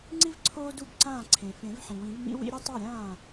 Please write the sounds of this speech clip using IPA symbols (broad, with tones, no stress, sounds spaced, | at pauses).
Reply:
ŋ͡ǀ i˥ v ǀʰ oː˥ d u˥˩ b ǀ ãː˥˩ ǀʰ ẽ˩ f ẽ˨˩˦ v ħ ĩ˩ w ĩ˨˩˦ v m ḭ˥ w ḭ˥ ɾʲ ɐ˥ tˤ ɛ˥˩ ɾʲ ãː˥˩